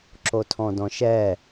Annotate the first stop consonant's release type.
click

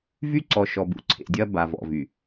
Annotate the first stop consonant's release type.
click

